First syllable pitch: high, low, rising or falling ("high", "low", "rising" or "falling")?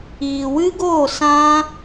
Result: low